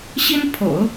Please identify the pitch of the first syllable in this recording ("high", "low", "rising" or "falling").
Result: high